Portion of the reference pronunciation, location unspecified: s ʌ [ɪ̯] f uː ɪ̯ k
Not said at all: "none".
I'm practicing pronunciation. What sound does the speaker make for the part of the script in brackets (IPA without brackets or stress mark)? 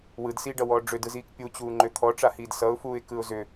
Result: ʊ̯